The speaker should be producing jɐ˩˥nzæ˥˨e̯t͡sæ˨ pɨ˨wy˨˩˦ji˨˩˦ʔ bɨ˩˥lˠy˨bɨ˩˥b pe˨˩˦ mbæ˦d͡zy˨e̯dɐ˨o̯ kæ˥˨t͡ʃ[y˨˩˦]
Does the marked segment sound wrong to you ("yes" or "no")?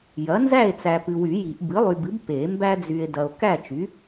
yes